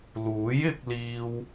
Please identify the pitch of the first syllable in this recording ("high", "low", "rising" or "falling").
rising